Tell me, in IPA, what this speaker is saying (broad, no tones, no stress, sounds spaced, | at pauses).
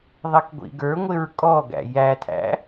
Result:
ðˤ i k ɡʷ ḭ ɡ ə˞ ŋʷ ɪ ɹ kʼ ɔ ɡ æ̰ j æ tʰ æ̰